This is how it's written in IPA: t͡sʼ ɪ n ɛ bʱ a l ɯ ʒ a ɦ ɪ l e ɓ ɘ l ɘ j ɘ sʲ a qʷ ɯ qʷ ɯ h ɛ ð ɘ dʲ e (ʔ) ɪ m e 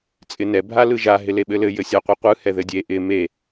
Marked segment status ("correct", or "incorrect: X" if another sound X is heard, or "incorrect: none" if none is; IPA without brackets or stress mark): correct